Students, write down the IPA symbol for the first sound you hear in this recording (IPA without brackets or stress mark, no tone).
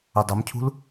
ʊ